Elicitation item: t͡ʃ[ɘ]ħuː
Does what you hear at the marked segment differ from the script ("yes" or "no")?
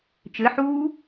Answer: no